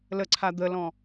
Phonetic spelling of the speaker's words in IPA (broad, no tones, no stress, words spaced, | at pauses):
ləǀʰa d̪əlɔ̃